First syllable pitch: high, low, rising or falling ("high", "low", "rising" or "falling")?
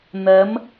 rising